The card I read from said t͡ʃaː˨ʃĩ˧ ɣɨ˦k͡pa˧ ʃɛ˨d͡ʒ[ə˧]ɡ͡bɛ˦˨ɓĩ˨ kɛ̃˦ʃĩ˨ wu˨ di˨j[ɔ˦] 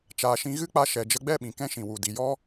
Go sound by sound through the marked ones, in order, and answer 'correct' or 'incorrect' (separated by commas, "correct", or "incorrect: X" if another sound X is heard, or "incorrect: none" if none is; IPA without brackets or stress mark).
correct, correct